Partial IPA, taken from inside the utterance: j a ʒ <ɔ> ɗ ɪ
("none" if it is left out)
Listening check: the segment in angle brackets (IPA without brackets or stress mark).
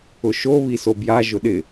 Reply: ʊ